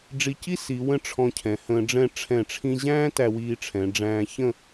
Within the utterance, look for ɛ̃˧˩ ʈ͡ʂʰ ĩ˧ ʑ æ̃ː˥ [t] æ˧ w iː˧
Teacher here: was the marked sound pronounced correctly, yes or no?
yes